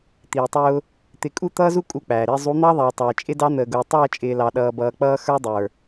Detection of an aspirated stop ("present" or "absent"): absent